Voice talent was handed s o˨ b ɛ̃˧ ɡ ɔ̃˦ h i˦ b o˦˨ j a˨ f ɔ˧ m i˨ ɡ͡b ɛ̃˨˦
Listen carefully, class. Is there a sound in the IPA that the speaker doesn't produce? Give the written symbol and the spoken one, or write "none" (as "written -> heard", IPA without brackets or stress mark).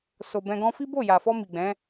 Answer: h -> f